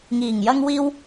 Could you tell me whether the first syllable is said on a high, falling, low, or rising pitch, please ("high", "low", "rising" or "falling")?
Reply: low